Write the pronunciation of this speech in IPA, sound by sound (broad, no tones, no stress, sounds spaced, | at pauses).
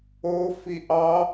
o f i ʔ ɑ